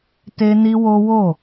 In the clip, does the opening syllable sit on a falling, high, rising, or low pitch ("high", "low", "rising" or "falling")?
high